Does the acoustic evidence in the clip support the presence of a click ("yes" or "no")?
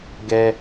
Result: no